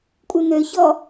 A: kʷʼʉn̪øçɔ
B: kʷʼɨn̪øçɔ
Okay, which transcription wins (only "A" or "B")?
B